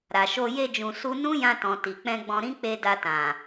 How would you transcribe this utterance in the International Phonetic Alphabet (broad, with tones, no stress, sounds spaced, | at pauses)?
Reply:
ɾ a˨ ʃ o˧ j e˧ d͡ʒ ũ˨ s u˧ n ũ˦ j ã˧ t ɔ̃˨ t i˨ k͡p ɛ̃˧ ɡ͡b ɔ̃˧ ɾ ĩ˦ k͡p e˧ d a˧ t ã˨